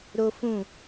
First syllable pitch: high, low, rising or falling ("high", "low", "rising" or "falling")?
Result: high